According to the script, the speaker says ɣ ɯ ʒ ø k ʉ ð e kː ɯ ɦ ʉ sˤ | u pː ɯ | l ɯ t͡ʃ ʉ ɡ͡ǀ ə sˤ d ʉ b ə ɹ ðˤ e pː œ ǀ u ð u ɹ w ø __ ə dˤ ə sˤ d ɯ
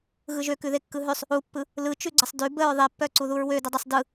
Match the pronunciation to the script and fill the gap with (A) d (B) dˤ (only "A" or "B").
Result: A